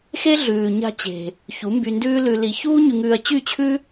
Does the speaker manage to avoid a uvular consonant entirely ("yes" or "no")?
yes